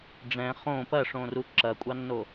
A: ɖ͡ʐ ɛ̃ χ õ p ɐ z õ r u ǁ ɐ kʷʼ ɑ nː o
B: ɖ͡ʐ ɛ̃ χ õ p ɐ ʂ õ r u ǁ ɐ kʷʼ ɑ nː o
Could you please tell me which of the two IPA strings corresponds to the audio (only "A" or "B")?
B